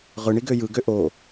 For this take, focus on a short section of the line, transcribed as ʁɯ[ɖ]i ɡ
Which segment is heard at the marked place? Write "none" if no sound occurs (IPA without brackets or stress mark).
ɳ